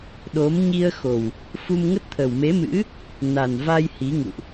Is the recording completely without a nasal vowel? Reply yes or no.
yes